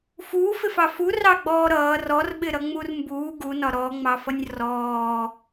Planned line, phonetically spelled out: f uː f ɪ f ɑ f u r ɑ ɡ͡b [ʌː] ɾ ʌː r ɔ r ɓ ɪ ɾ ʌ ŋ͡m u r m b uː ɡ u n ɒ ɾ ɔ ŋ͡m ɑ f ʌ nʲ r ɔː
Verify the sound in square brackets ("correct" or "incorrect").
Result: incorrect